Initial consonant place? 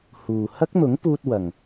glottal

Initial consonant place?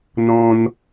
alveolar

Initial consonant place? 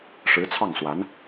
retroflex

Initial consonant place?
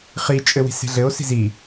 uvular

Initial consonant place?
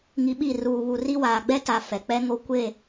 velar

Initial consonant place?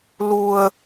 alveolar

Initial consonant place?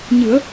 palatal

